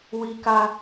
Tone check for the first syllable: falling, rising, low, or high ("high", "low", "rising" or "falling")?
high